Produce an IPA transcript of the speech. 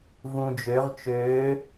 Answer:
v ũ d͡ʒ ø ʁ t͡ʃ øː

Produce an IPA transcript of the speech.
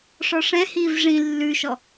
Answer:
ʂ ɔ ʂ ɛ̃ h iː v ʐ ĩ lː ʉ ʃ ɔ

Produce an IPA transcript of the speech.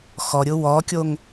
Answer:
x ɔ ɾʲ ʊ w ɔ kʲ o ŋ

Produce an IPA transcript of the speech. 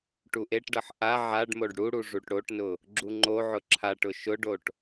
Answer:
ʈ u ʔ e ʈ ɖ ʌ ħ ʔ a ʕ a ɖ m o ɖ ɽ u ɽ u ʐ u ʈ ɽ o ʈ n ʊ | ɡ͡ǁ u ŋ͡ǃ o ʕ ʊ ǁʰ a ʈ ʊ ʃ ʊ ɖ o ʈ

